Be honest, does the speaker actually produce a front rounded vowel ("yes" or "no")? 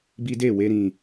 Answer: no